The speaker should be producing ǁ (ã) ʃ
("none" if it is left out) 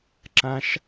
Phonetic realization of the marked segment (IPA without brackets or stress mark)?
ã